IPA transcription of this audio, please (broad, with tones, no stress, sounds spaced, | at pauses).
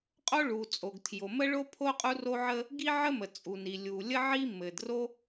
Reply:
qʼ o˥ ɭ u˩ t͡sʼ o˩ ɡ tʰ j o˩ m ə˥ ɭ o˥ pʰ o˥ qʼ u˥ r o˥ ʕ ə˥ | ɡ i˥ ʕ ə˥ m ə˩ t͡sʼ u˩ n i˩ lʲ u˩ lʲ ə˥ ʕ i˥ m ɘ˩ d r o˥